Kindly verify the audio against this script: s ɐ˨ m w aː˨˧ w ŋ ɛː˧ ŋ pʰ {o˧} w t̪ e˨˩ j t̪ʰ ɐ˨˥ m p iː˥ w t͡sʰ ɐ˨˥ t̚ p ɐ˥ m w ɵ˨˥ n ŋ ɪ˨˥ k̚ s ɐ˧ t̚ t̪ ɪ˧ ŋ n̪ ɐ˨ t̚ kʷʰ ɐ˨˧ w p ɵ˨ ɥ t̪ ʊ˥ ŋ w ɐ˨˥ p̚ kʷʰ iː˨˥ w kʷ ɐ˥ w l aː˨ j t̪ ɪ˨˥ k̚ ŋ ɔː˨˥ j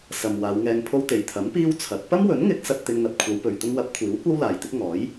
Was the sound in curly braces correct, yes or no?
yes